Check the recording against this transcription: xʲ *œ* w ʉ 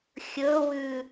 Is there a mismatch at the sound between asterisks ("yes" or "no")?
yes